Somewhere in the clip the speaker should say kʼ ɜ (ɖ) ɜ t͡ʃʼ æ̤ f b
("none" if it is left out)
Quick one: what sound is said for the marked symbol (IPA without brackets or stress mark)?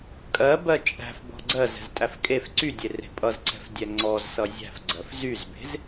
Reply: b